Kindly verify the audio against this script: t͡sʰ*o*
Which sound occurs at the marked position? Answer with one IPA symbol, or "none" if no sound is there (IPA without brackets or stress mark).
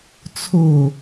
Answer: o